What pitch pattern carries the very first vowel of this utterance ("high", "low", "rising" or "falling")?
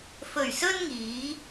low